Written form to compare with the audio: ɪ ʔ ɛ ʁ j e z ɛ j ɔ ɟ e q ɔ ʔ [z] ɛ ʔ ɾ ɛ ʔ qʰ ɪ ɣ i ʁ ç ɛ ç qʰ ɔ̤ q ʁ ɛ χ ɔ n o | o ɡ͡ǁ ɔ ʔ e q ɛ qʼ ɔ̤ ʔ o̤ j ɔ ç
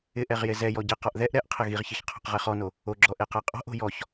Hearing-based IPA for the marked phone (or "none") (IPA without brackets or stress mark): ð